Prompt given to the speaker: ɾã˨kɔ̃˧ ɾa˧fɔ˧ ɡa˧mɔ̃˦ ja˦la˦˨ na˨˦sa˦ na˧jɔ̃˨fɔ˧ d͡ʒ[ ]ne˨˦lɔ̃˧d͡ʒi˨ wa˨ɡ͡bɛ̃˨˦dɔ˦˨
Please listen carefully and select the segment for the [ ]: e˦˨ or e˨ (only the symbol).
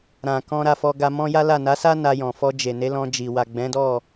e˨